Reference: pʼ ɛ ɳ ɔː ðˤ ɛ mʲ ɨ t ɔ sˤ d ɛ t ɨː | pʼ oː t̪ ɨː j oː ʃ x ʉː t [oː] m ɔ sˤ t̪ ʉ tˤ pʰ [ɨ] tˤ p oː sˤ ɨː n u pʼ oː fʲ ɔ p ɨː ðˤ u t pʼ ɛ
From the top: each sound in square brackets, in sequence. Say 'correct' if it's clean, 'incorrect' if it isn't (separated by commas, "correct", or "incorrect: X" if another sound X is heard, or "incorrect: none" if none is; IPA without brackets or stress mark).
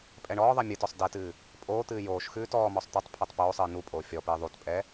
incorrect: ɔː, incorrect: ɛ